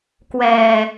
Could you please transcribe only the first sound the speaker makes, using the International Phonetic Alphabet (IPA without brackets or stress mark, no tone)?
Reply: k